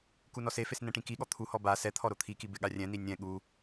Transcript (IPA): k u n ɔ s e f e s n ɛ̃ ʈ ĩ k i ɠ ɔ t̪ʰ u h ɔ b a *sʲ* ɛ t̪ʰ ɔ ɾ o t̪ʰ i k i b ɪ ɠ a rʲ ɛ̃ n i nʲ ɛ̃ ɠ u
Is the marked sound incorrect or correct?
incorrect: s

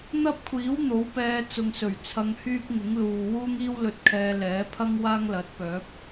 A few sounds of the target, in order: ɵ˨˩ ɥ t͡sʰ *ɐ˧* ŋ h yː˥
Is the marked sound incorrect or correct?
correct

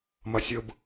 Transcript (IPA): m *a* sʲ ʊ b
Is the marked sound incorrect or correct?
incorrect: ʌ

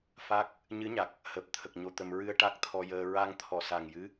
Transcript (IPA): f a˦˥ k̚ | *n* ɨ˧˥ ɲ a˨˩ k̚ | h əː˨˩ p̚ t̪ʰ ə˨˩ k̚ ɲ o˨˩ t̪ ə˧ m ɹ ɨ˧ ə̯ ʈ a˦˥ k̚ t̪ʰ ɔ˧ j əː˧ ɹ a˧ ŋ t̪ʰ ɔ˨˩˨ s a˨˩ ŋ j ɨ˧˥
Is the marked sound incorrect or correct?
incorrect: ɲ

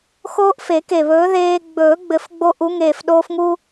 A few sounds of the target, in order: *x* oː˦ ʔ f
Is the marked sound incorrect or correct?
correct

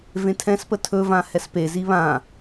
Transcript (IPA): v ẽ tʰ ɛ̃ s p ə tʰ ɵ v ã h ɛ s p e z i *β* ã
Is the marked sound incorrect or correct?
correct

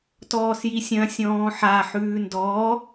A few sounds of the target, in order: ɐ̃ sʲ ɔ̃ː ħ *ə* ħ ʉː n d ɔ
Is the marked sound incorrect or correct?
incorrect: a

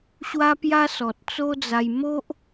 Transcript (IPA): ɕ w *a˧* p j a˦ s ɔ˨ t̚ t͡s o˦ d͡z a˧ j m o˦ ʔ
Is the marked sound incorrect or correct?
incorrect: a˦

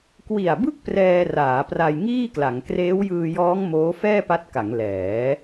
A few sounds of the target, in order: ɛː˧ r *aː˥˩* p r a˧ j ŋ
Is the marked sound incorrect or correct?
incorrect: aː˩˦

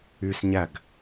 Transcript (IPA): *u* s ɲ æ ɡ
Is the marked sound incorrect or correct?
incorrect: y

